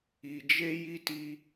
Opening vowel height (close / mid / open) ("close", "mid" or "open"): close